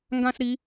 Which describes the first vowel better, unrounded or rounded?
unrounded